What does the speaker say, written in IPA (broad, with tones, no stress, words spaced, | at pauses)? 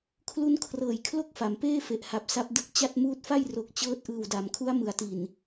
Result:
kʰlu˦˥nkʰrɤː˨˩jkʰlo˦˥k̚ fa˩˦mpeː˥˩fe˨˩ʔha˨˩p̚ sa˦˥p̚dɯ˦˥k̚t͡ɕa˥˩t̚ muː˦˥t̚fa˥˩j ro˨˩k̚ t͡ɕɤː˦˥t̚ʔɯː˨˩wda˩˦mkʰu˦˥a̯ mɯ˩˦a̯ti˨˩n